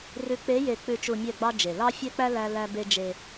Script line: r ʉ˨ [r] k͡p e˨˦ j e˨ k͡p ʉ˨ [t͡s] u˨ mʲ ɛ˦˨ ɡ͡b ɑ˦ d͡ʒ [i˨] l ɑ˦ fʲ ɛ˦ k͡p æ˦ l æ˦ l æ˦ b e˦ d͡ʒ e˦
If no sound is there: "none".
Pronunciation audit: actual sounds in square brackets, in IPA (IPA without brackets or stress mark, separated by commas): none, t͡ʃ, e˨